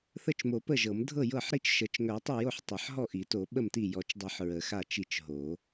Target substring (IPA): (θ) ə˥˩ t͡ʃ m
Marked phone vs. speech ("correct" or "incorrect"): correct